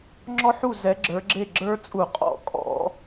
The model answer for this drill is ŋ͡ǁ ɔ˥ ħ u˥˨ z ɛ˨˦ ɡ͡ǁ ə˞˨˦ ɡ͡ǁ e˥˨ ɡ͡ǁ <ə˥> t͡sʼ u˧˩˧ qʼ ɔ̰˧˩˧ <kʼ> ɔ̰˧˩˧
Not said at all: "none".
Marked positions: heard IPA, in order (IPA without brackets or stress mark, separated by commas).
ə˞˥, kʼ